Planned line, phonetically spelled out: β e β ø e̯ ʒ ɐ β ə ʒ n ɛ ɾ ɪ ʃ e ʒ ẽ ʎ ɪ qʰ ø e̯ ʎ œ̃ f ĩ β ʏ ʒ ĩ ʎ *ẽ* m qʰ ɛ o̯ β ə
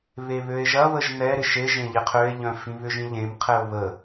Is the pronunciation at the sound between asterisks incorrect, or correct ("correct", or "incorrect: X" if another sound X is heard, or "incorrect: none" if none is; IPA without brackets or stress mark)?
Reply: correct